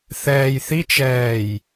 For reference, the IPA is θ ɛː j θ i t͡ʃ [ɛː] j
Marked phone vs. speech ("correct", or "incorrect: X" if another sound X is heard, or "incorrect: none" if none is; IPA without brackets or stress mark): correct